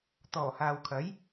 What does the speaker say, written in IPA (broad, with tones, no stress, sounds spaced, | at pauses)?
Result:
t̪ ɔː˨˩ h aː˨ w kʰ ɐ˨˥ j